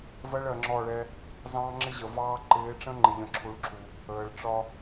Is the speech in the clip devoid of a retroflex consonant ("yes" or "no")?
no